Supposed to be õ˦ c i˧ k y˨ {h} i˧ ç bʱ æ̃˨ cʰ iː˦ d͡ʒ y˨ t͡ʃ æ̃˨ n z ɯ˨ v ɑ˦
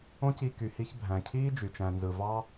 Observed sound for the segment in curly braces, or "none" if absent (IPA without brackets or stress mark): h